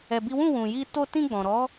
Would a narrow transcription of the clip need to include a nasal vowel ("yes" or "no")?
yes